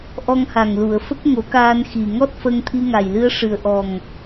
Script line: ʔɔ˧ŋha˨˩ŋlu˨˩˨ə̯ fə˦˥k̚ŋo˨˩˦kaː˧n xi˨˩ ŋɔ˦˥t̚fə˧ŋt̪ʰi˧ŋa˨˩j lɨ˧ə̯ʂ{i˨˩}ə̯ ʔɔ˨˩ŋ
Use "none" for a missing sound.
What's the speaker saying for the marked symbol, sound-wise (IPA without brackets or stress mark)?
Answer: ɨ˨˩